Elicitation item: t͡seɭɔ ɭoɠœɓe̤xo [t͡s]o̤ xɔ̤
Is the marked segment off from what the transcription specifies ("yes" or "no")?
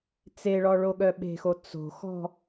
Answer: no